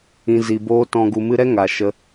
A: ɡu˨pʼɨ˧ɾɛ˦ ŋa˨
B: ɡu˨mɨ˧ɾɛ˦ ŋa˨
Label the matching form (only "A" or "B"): B